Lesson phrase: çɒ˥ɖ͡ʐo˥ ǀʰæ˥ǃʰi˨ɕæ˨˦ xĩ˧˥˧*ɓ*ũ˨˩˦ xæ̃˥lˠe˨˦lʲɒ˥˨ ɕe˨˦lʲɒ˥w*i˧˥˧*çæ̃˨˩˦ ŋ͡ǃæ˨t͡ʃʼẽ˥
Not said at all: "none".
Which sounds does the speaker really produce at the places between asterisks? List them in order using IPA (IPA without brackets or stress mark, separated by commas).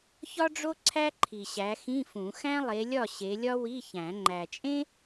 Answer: f, i˧˥˧